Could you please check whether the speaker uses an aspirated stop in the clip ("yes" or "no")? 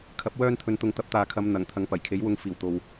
yes